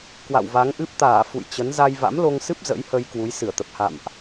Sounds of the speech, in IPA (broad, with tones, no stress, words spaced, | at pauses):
kwa̰˧˨wva˨˦ŋʔɨ˦˥p̚ t̪aː˧˩ fṵ˧˨jt͡ɕə˨˦n za˧jva̰˧˥mlo˧ŋsɨ˦˥p̚ zə̰˧˥jhə˧j kwu˨˦jsɨ˧˩ə̯t̪ə˨˩p̚ ha̰˧˨mʔ